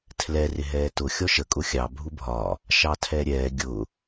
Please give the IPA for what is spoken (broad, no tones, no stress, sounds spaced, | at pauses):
tʰ l ɛ r ɪ ɦ ɛː t ʊ xʲ ɔ ʃ ə kʼ ʊ xʲ ɑ bʱ u bʱ ɒ | ʃ ɑ tʰ ɛ ɾʲ ɛː ɡʲ ʊ